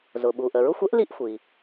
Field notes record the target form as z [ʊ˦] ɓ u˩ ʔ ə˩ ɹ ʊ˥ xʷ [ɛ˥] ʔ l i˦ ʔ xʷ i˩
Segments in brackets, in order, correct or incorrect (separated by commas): incorrect, correct